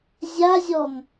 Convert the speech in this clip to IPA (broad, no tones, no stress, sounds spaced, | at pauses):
zʲ a zʲ ɔ ŋ